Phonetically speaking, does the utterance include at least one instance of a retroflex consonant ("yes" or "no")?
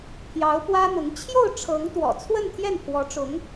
yes